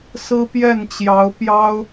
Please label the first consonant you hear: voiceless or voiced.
voiceless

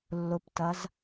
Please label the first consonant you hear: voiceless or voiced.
voiced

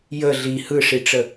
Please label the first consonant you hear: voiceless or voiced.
voiced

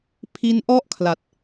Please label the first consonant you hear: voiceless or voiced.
voiceless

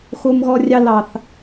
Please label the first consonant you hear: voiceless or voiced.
voiceless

